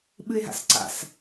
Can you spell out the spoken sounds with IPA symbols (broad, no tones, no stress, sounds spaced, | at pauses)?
ɓ ɨ e̯ ɦ a̰ s ǀ a̰ s